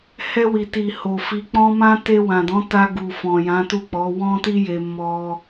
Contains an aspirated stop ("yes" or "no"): no